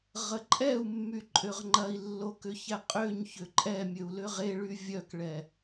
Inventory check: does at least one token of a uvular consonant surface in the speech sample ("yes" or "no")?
yes